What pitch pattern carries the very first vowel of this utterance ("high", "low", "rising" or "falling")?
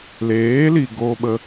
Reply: rising